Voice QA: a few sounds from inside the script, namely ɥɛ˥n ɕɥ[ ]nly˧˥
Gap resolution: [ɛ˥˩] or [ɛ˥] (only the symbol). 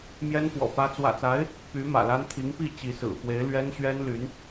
ɛ˥